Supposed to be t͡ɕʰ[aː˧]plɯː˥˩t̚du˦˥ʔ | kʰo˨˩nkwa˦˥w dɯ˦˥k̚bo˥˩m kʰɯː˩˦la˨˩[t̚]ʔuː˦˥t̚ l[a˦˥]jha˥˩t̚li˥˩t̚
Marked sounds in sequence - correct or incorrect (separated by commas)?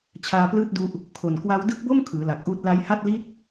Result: correct, incorrect, correct